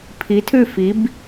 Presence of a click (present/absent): absent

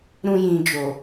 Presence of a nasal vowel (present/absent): present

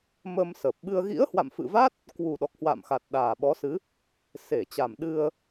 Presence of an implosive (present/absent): present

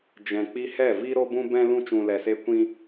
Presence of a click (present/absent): absent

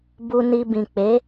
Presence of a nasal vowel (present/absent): present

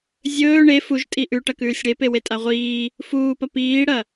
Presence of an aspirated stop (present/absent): absent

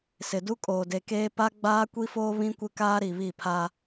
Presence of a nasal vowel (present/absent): present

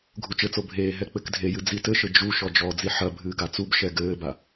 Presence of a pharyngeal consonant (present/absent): present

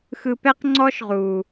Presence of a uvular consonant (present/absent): present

